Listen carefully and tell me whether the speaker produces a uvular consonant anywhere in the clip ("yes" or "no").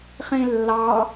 yes